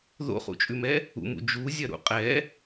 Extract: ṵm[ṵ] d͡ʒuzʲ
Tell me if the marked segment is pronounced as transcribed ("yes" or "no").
yes